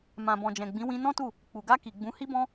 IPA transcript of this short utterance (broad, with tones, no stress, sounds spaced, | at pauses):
m ã˨ b ɔ̃˨ d͡ʒ ɛ̃˨ ɡ͡b ĩ˨˦ w ĩ˧ n ɔ̃˦ t u˦˨ | k͡p u˨ ɡ a˧ k i˨ ɡ͡b ũ˨˦ h i˦ b ɔ̃˦